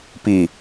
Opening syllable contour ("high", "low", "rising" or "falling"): low